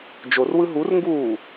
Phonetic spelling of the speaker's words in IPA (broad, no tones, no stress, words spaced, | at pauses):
d͡ʒorwɯ ɦurŋɡuː